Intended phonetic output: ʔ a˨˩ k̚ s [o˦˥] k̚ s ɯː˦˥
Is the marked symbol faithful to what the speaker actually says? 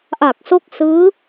yes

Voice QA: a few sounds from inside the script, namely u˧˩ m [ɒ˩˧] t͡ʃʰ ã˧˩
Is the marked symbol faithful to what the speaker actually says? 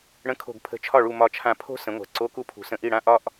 no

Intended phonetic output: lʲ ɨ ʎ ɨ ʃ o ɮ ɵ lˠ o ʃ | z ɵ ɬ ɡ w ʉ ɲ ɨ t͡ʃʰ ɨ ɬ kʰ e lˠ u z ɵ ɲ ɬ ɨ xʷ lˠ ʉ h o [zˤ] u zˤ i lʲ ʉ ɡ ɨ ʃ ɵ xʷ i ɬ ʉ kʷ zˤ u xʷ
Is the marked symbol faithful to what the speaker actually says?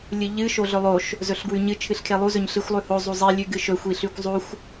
yes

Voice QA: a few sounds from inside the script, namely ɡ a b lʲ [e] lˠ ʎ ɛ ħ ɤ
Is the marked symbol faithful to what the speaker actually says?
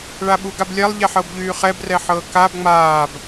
no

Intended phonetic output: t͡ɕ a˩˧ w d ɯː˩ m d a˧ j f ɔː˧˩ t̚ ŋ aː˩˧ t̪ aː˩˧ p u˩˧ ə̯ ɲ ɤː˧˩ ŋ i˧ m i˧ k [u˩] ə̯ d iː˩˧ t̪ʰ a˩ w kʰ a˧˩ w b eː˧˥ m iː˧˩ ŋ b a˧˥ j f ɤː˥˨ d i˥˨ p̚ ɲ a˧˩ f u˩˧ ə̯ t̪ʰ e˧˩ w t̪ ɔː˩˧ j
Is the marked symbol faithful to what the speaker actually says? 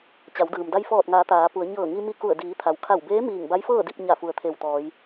no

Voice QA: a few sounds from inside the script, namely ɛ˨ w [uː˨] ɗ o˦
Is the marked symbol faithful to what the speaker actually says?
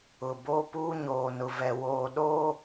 no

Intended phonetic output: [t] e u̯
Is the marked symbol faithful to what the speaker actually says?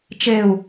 no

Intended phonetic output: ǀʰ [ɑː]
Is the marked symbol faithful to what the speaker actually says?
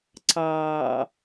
yes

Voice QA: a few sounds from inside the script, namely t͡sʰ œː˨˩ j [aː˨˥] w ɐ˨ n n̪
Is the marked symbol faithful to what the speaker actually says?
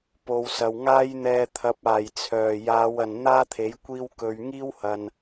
no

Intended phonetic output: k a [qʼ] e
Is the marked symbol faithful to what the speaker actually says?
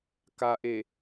no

